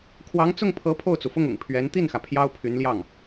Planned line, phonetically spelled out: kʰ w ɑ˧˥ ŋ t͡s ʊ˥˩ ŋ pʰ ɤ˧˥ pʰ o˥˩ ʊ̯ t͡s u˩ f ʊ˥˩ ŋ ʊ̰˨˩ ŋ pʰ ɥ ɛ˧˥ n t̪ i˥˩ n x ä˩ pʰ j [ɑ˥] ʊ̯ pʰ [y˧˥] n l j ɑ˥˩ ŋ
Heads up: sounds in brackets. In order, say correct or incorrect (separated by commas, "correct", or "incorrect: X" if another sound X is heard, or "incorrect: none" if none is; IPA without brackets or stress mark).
correct, correct